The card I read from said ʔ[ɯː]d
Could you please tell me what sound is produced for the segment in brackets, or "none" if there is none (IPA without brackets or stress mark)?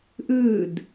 ɯː